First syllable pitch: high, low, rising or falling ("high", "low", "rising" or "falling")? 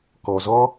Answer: low